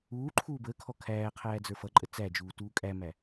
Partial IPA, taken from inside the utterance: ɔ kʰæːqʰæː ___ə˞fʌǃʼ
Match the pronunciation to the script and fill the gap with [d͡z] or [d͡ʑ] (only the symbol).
d͡z